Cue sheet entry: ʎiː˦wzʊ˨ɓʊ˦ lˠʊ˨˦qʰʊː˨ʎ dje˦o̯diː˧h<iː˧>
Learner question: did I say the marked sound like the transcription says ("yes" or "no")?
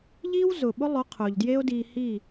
no